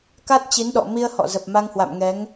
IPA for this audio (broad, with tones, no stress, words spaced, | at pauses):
ka˦˥t̚t͡ɕi˨˦nɗɔ̰˧˨ mi˧ə̯hɔ̰˧˨zə˨˩p̚ ma˧ŋhwa̰˧˨m ŋɛ˨˦ŋ